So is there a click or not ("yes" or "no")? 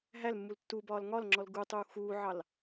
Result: yes